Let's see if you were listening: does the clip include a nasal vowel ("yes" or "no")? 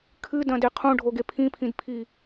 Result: yes